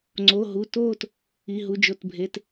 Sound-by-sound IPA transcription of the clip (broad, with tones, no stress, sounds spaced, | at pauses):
ŋ͡ǀ o˩˧˩ ɦ u˩˧˩ t oː˦˨ t | i˩˧˩ ɦ u˩˧˩ d͡ʒ o˩˧˩ t bʱ e˩˧˩ t